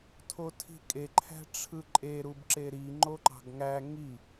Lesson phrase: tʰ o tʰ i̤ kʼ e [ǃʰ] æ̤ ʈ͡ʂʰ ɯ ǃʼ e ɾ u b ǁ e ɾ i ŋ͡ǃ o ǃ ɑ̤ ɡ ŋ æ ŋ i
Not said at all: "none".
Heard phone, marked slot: ǃʰ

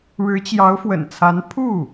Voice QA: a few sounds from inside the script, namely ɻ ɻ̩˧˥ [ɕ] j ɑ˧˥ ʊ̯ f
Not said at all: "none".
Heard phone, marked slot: t͡ɕ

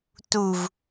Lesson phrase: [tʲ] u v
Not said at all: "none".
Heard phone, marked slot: t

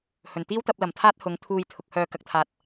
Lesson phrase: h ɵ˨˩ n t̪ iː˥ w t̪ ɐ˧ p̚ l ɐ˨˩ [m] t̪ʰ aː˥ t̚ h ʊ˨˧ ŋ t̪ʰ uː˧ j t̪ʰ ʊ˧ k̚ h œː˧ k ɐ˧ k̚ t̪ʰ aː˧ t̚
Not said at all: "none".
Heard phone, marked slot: m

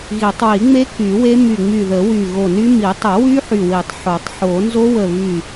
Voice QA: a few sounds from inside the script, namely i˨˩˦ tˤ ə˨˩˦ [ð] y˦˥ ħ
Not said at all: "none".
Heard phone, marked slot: w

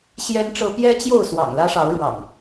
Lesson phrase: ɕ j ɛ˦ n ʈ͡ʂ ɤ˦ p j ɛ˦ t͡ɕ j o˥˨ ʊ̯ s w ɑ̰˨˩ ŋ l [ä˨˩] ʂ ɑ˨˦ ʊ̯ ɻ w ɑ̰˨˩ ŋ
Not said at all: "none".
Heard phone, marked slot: ä˦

